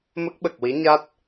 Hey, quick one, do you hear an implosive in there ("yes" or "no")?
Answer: yes